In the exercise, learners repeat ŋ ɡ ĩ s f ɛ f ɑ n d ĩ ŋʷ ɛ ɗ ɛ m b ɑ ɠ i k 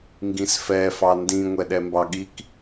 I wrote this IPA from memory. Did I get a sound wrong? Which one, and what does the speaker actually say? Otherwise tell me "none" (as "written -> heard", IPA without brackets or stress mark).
none